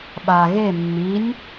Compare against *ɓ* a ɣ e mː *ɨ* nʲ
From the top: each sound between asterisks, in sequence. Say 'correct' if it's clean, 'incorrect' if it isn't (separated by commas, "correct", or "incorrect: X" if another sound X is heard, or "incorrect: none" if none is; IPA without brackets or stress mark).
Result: correct, incorrect: i